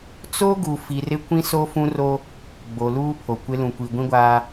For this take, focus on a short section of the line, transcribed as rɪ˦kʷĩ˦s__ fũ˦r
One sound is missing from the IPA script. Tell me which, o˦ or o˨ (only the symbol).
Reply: o˦